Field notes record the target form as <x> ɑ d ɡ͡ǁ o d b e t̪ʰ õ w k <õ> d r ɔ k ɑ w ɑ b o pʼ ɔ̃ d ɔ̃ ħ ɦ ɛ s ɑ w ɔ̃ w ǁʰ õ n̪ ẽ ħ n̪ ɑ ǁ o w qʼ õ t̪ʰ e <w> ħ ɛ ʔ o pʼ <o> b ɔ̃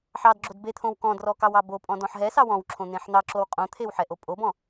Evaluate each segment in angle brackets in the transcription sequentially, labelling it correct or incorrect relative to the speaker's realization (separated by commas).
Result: incorrect, incorrect, correct, correct